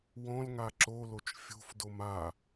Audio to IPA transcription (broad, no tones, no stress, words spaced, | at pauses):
wɔ̃lŋa ǁolot͡ʃ fʲo̤fdom a